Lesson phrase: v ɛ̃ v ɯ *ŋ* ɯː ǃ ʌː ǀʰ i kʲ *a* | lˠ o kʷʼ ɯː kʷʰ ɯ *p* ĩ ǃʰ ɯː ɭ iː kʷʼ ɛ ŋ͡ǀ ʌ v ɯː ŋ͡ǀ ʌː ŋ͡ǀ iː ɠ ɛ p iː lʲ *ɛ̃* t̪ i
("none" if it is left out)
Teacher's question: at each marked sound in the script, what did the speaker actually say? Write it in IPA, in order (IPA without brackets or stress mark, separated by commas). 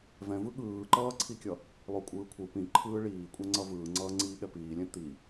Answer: ɠ, ʌ, p, ɛ̃